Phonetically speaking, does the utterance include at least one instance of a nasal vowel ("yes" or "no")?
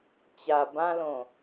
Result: yes